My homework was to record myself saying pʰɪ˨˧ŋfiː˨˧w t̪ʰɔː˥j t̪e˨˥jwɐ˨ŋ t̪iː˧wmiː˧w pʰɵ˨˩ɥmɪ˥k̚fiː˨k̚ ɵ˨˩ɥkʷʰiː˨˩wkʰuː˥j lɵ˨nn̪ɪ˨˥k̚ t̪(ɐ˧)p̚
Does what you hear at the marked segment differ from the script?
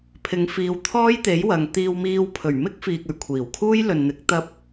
no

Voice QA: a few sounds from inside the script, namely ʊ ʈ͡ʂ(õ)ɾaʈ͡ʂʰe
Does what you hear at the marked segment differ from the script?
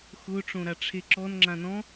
no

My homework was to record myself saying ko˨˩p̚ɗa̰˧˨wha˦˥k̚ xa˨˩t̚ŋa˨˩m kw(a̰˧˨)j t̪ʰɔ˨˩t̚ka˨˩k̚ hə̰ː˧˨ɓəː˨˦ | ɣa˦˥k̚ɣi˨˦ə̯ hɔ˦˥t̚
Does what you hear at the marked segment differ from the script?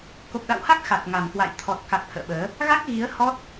no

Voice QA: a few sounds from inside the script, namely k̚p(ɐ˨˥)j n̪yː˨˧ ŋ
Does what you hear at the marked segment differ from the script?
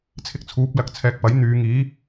no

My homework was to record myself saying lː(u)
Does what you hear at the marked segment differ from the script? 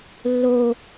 yes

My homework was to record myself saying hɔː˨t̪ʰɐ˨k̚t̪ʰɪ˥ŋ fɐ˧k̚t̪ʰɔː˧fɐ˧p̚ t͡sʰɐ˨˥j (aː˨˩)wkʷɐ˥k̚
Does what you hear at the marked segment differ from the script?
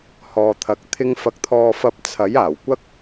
no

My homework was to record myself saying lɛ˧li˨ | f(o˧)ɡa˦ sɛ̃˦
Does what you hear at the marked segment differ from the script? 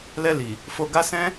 no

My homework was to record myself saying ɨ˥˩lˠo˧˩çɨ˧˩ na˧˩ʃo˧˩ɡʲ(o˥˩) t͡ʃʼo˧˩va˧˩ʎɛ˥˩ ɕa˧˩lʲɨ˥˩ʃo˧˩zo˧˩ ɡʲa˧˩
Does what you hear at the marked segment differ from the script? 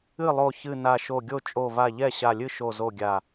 no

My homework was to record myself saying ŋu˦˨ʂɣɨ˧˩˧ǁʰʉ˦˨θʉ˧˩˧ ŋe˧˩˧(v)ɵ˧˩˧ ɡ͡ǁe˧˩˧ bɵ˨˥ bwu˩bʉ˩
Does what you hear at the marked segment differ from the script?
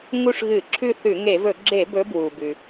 no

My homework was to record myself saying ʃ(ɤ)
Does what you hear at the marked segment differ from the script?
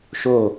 yes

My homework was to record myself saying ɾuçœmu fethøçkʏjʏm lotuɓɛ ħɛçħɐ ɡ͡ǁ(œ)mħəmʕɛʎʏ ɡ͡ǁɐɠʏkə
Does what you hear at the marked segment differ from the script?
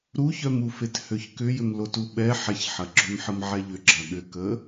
yes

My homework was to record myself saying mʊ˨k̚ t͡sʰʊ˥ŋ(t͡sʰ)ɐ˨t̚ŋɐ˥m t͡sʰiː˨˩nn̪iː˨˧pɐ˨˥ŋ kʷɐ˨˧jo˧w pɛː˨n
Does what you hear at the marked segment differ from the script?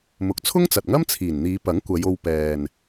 yes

